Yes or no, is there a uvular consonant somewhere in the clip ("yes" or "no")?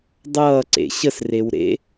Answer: no